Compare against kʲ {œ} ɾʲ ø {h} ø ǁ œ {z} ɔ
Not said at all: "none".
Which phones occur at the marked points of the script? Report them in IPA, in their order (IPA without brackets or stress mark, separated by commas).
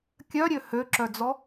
œ, h, d͡z